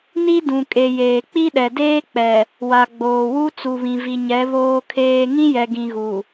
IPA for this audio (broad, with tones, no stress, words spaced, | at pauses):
ni˦dũ˨kʼe˨ jeː˨k͡pi˦ɗɛ˨ deː˦k͡pɛ˨ | wa˨ɡ͡boː˨wu˦ t͡su˨βĩ˨vi˨ɲɛ˨˦ βoː˦kʰeː˦ ŋĩ˦ jɛ˨ɡĩ˨ɣu˨